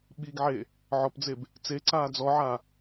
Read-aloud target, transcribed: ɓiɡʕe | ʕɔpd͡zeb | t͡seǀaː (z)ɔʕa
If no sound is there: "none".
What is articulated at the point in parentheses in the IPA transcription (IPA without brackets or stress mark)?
d͡z